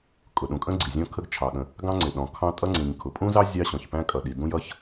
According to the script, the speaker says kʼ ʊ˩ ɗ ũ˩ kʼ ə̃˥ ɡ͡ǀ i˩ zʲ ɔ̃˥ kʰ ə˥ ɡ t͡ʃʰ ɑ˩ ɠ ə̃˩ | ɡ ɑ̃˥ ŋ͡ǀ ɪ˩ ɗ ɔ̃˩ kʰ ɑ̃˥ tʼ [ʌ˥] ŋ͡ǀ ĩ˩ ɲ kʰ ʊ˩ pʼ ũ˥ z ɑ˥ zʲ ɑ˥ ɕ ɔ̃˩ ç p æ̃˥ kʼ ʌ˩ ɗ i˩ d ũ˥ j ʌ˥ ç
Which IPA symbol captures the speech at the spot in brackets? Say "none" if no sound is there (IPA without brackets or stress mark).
ʌ˥